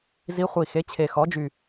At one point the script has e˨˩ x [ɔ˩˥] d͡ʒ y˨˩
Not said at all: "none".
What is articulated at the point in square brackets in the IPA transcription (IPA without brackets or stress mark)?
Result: ɔ˩˥